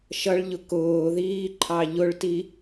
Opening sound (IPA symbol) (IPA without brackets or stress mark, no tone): ʃ